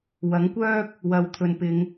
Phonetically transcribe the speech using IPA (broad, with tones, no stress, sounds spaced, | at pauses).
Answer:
w ɐ˨˥ ŋ kʷ œː˥ k̚ | w ɐ˨ w t̪ʰ ɵ˨ n p ɪ˨˧ ŋ